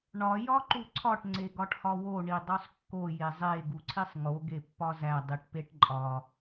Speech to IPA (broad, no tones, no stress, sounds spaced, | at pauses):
ɳ ɒ j ɒ ǃ u ǀʰ ɒ ʈ ŋ͡ǀ e ɡ ɒ ʈ h ɒ w o ɳ i dˤ o sˤ kː o j e zˤ e ɡ u ǀʰ i sˤ ŋ o ɡ e pː ɒ z æ dˤ i ʈ p e ʈ ǃʼ ɒ